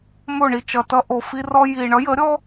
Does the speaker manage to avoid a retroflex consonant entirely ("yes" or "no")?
no